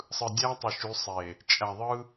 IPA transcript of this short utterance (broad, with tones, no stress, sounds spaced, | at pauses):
sˤ ɯ˨ dʲ æ˦ tˤ ɯ˨ ʃ y˨˦ sˤ e˨ | t͡ʃʼ æ˨ ðˤ ɯ˦